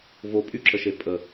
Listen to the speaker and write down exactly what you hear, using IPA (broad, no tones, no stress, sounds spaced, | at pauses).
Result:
v o pʼ y ǁ ə ʃ e pʼ ə